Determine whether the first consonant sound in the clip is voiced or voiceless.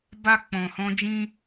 voiced